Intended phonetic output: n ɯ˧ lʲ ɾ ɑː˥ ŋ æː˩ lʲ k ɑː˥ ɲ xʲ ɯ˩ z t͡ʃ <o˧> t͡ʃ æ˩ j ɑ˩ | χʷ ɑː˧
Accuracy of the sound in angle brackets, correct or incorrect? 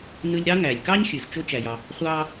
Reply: correct